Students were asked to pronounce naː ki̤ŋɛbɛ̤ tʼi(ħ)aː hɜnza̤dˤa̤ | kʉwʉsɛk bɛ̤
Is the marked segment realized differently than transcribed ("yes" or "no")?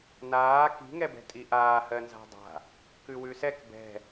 yes